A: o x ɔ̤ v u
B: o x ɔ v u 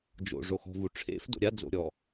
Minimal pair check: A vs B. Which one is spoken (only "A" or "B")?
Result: A